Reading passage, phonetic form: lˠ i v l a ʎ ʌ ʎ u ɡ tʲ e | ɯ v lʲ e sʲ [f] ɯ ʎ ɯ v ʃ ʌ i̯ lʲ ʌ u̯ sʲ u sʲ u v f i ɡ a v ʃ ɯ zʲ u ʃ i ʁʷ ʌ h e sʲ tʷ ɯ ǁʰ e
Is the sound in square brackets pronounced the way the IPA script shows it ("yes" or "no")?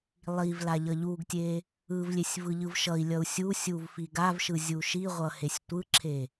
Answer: no